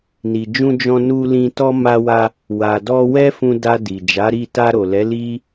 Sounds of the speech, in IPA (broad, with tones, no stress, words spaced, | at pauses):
ni˨d͡ʒũ˧ d͡ʒɔ̃˧nu˧lĩ˧ tɔ˧ma˧wa˧ | wa˨dɔ˧ wɛ˦fũ˧da˧ di˨d͡ʒa˨˦ɾi˦˨ ta˧ɾo˨lɛ˨˦ li˦